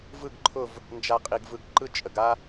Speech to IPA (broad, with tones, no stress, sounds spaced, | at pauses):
v ɯ˦˨ ɡ ǃʰ ʊ˦˨ v | n d͡ʒ a˨ qʼ i˨ ɡ v ɯ˨ ɡ ǃ ɯ˦ t͡ʃʼ ə˨ ɡ a˦